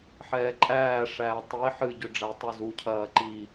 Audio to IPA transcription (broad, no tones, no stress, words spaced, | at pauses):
ħɛːǃʼæː ʂæːtˤi ħɨɟʏ ɖ͡ʐætˤuzucʰɐː ǃi